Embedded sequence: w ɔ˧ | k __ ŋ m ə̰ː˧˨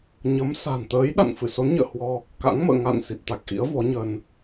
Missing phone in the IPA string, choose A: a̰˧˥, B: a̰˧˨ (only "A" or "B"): A